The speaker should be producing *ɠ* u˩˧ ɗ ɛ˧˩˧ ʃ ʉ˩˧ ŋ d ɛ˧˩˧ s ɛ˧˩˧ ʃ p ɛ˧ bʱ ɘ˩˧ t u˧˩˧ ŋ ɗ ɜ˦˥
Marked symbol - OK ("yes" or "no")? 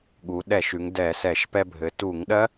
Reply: yes